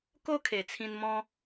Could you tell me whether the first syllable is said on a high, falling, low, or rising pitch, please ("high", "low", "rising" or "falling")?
high